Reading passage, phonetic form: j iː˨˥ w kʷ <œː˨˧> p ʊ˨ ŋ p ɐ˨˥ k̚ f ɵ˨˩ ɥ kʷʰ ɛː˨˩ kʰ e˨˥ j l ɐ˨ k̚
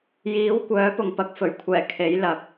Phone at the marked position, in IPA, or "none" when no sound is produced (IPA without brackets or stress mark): œː˨˥